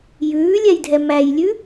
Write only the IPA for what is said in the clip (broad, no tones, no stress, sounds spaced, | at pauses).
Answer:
j ʉː lʲ ɛ j dʱ ɛ m æ j lʲ ʉ